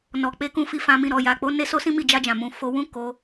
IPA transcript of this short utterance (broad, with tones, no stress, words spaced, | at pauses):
nɔ˨k͡pe˨˦kũ˧fi˧ fã˧mĩ˧ ɾɔ˨ja˨k͡po˨˦ ne˦so˦sĩ˦ mi˦˨d͡ʒa˧d͡ʒã˨mũ˨ fo˧wũ˦ko˧